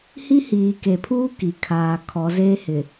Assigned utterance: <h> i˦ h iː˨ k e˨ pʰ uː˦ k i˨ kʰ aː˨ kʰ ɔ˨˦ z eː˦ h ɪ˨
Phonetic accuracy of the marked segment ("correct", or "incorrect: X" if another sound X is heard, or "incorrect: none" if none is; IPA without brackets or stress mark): correct